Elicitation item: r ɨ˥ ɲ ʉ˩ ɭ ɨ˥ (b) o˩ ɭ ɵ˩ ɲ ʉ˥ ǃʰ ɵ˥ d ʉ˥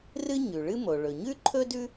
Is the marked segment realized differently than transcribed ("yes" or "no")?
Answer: yes